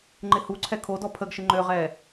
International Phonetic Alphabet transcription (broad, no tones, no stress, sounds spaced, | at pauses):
ŋ͡ǃ ɪ h u ǀʰ ɛ kʰ o d ɔ pʰ ə ɡ ʃ ɪ ŋ͡ǃ ø ʁ ɛː